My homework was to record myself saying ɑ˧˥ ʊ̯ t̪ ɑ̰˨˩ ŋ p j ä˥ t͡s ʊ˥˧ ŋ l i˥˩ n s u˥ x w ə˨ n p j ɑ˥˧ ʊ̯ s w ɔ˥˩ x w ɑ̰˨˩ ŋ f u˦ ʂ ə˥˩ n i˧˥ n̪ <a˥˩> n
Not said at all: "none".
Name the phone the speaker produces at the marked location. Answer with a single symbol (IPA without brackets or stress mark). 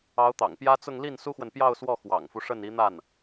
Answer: a˥˩